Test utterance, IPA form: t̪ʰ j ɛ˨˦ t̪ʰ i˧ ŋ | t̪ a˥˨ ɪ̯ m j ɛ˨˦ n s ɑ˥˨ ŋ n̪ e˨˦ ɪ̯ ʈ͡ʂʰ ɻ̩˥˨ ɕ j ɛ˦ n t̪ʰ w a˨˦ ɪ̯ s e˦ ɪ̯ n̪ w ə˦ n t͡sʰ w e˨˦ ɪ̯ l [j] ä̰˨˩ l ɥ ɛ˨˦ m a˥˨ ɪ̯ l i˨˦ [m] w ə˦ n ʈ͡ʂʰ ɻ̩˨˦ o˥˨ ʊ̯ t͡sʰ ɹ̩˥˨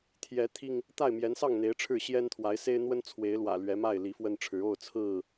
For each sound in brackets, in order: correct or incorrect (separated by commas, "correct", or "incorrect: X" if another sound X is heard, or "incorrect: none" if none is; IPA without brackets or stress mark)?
incorrect: w, incorrect: f